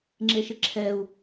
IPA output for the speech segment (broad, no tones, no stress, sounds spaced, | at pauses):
ŋ͡ǁ e ʃ ɪ ǁʰ ɛ u̯